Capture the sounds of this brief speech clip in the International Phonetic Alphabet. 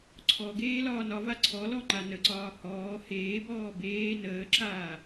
ǀʰɔɡeː lɒːnɒva ǀʰɔlɔ ŋ͡ǃanəǀɒː hɔː heːbɔː beː nəːǁaː

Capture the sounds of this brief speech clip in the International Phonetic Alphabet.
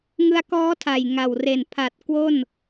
ŋɯ˧a̯kɔː˦˥tʰa˨˩j ŋa˨˩w re˨˩npʰa˨˩t̚ kwo˥˩n

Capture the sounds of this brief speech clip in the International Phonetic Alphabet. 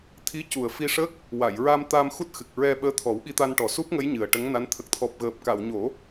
t̪ʰi˧˥cu˨˩ə̯ fi˧ʂə˦˥k̚ | wa˨˩˨jɹa˧mt̪a˧m xu˦˥t̚xɨ˨˩k̚ ɹɛ˧ ɓəː˧˥t̪ʰɔ˨˩˦wɓi˧t̪a˧n ʈɔ˨˩su˦˥p̚ŋə˧˥j ɲɨ˨˩ə̯ ʈə˧˥ŋna˧˥n t̪ʰə˨˩k̚t̪ʰɔ˨˩p̚ ɣəː˨˩p̚ka˨˩˨wɲo˨˩˦

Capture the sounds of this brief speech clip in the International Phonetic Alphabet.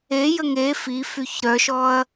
e jəŋe fifyç ɾœʃɔɐ̯

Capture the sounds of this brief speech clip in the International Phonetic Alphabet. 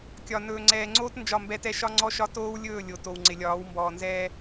kʲɒ˨ nɵː˨ŋ͡ǀɛː˨ŋ͡ǀoː˦t nd͡ʒɒ˦˨mbɛ˦tɛ˦ ʃɒ˦ŋ͡ǀɔ˦ʃɒ˦ toː˦wlʲɵː˦˨ lʲo˨ to˨wŋ͡ǀɪ˨lʲɒː˨˦w mbɔː˨nzɛː˦

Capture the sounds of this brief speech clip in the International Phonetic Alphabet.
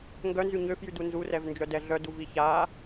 ŋɡœnzy ɲøfjydu nzurɛvnd͡ʒœdɛ ɮœduvi ça

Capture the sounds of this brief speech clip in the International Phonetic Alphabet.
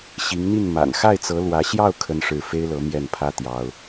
ɕi˧˥ŋn̪i˥˩n ma̰˨˩n xa˥˩ɪ̯t͡sɤ˧˥ lwä˧˥ɕjɑ˥˩ʊ̯ kʰə˥nʂɻ̩˥˩ fe˥ɪ̯lɤ˧˥ mjɛ˥˩npʰä˥ t̪jɑ˥ʊ̯

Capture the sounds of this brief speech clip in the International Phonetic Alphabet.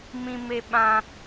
mĩ˧me˧ ɓã˧

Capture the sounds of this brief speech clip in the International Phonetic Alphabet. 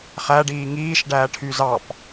χæɖiː ŋiːʃɖæːʈʰy zɑp

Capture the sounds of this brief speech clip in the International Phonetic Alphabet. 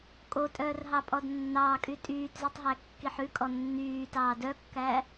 kʼotʼœːrɦɑpʼɔd nːɑːkʼy tʼyːtzʉtˤɦæ kːiħʉkʼɔ nːyːtɑː dœkːæ

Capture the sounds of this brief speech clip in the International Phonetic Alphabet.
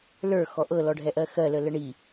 lə˞ xɔʔɤ lɔɖʱɛʔɜxɜ lələɳi

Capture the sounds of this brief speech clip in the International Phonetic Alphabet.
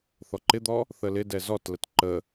θɔǃɪd̪ɔ | θəlɪdɛ zɔtlət ǃə

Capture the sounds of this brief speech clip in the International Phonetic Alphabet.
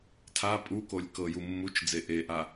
tʰa pʼukolʲ kɤju mːut͡ʃ d͡zeʔeʔa

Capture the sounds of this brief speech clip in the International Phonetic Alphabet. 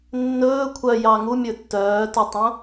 nːɵː kʷʰœ jɑŋumʲɵ tːœːtutˤõ

